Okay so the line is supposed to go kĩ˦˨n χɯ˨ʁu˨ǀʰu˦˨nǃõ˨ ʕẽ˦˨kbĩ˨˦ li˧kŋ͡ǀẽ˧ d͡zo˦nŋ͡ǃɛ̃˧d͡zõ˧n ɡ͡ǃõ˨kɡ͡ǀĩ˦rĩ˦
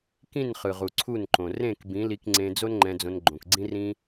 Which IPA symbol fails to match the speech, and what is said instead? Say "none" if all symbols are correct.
ʕ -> r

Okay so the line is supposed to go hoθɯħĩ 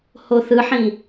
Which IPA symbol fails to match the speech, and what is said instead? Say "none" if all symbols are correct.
none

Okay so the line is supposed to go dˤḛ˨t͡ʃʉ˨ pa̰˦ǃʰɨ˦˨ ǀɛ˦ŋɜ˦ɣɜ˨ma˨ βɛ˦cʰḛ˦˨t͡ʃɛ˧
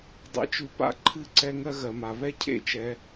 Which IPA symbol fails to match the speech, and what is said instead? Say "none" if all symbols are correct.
none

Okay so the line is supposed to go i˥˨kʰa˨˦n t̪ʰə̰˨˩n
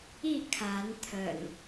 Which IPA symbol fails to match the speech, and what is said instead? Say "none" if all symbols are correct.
none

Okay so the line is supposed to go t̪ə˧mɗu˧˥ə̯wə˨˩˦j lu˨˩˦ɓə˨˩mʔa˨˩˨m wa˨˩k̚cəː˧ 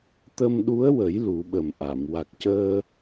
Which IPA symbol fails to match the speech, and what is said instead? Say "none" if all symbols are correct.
none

